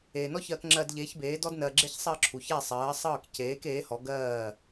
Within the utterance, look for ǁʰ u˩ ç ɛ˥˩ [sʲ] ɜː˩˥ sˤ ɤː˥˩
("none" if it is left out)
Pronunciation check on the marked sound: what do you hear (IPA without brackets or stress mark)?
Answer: sˤ